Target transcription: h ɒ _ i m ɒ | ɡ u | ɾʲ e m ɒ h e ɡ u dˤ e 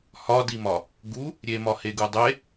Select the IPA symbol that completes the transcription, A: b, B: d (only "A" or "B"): B